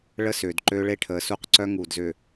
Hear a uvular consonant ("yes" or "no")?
yes